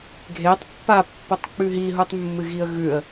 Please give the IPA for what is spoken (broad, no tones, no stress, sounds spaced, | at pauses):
ɡʱ e tˤ pː a pː o tˤ k͡p ʉ ɦ i ɦ u tˤ mː ɨ ɣ i ə̯ ɣ ʉ ə̯